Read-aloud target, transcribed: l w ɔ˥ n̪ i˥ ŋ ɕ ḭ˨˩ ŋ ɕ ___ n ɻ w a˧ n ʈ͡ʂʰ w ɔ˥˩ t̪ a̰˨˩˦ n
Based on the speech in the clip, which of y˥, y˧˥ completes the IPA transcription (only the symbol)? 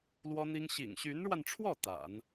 y˧˥